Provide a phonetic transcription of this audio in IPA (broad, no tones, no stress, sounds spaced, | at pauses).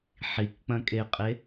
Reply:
ħ i k k͡p ɐ̃ kʼ e qʼ e